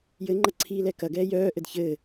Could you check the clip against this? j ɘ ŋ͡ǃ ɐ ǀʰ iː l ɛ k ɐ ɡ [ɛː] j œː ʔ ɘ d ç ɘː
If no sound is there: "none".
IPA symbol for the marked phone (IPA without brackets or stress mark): ɛː